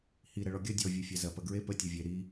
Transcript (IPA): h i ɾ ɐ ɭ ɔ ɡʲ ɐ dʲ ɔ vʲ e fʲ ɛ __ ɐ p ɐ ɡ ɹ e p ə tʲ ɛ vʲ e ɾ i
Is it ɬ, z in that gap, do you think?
z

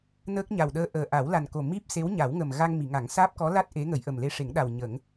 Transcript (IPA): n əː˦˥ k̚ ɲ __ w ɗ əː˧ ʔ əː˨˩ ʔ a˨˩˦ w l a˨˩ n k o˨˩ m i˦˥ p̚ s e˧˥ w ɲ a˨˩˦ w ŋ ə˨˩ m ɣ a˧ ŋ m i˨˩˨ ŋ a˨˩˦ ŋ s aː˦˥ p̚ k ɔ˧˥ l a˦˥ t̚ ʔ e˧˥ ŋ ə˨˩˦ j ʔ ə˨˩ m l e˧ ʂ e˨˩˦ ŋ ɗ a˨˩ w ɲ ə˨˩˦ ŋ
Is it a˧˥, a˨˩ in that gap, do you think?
a˨˩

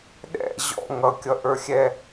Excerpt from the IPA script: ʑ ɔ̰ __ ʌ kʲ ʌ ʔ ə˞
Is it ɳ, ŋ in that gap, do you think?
ŋ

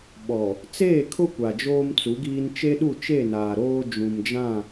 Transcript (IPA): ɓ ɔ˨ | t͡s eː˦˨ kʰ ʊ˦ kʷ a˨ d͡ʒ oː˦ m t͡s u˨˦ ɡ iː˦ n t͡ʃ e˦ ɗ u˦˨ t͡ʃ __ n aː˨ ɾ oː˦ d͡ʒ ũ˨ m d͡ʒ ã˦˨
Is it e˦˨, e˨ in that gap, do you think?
e˦˨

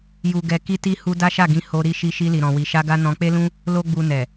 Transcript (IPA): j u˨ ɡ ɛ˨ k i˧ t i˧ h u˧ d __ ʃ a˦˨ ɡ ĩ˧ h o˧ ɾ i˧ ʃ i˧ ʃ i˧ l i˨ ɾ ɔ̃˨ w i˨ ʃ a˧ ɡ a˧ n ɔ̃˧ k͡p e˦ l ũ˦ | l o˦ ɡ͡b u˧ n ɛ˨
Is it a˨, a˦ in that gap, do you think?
a˦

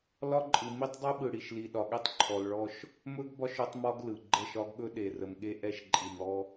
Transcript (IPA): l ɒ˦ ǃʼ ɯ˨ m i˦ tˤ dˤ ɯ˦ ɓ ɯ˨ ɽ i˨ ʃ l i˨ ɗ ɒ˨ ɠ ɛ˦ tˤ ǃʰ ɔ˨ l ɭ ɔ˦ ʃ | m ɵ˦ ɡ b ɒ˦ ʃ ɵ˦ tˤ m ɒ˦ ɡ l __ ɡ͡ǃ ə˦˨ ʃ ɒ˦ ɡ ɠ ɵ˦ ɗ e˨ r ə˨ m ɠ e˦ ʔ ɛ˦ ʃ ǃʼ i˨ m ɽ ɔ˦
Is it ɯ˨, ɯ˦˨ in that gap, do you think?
ɯ˨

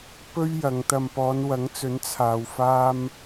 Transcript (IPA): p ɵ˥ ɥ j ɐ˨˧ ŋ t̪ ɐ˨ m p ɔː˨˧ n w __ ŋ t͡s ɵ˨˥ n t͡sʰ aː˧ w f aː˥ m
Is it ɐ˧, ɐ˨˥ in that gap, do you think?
ɐ˨˥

